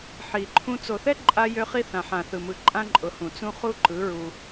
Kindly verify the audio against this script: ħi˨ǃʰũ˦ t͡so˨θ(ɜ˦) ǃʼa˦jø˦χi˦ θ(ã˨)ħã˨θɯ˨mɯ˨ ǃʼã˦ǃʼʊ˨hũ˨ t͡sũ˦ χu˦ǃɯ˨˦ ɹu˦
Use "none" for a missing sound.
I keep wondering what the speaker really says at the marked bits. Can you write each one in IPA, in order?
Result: ɛ˦, ã˨

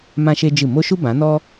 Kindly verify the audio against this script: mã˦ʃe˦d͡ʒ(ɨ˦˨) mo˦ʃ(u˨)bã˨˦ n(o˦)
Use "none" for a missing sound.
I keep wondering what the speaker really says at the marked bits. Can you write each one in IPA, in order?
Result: ɨ˦˨, u˦, ɔ˦

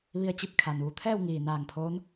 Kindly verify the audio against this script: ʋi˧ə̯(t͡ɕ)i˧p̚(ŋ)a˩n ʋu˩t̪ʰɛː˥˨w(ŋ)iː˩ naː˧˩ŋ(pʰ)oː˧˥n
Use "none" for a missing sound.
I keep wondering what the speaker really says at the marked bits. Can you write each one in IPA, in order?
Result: t͡ɕ, kʰ, ŋ, pʰ

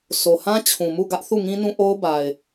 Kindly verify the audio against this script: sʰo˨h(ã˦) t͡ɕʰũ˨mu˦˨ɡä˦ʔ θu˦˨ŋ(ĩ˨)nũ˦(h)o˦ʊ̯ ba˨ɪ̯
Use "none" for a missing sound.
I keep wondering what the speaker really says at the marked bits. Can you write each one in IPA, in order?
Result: ã˦, ĩ˦, ʔ

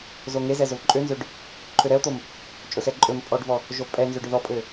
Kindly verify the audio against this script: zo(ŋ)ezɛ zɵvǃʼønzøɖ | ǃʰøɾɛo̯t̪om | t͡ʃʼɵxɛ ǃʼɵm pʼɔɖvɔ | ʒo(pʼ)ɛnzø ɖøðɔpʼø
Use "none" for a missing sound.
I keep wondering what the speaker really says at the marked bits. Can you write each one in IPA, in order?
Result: ŋ, pʼ

